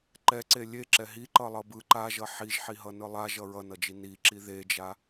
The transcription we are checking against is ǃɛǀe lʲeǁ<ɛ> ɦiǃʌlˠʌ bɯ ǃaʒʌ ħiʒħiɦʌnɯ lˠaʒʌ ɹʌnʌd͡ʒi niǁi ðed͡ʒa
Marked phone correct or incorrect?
correct